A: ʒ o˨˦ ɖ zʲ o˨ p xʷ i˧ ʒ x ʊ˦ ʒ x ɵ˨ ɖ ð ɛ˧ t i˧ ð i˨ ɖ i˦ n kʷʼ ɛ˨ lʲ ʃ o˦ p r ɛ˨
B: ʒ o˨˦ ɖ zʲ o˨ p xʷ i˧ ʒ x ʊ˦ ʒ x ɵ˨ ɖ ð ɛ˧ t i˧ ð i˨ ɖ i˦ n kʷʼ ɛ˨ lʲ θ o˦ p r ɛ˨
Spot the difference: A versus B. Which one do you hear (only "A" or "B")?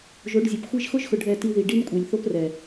B